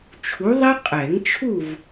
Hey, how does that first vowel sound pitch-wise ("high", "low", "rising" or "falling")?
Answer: rising